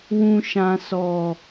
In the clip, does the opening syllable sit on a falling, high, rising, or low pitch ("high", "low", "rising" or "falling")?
high